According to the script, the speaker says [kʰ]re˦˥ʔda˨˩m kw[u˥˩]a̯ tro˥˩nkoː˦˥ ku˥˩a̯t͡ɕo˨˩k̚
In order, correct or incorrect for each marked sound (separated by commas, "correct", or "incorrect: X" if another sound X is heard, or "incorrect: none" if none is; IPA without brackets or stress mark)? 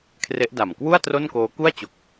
correct, correct